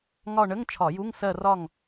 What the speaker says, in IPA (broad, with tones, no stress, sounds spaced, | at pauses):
ŋ ɒ˦˨ ɳ ə˧˥˧ ŋ t͡ʃʰ ɒ˧˩˧ j u˧˥˧ ŋ s ɜ˦˨ r ɒ˦˨ ŋ